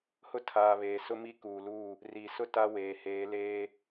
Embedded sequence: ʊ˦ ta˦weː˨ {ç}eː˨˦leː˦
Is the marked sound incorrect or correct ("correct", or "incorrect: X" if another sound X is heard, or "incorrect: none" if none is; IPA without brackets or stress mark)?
incorrect: h